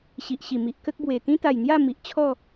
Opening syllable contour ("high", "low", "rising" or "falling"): low